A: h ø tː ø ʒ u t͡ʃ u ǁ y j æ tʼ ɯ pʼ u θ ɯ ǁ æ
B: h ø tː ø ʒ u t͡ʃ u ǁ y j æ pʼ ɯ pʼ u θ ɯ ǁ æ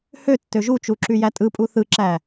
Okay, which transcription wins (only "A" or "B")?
A